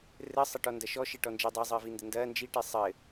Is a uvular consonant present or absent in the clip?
absent